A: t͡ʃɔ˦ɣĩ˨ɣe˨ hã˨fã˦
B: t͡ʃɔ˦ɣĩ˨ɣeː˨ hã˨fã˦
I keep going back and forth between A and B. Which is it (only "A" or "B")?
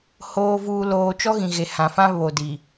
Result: A